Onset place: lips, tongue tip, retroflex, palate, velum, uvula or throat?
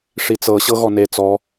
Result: retroflex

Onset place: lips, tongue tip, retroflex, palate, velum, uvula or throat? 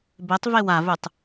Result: lips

